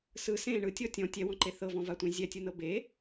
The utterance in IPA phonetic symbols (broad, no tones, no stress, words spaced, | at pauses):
sɯ sẽ ɳɯtʲɔ tʲɔ̃ tʲɛwɔ̃ǃe θɤvɔ̃vatʷẽ zʲɛtʲɯnɤ be